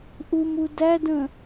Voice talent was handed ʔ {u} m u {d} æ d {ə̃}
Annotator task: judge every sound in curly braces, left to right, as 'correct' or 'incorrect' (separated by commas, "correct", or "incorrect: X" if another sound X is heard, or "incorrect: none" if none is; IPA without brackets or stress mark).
correct, correct, correct